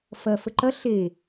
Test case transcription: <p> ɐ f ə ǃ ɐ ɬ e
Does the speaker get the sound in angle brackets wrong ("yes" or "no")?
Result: yes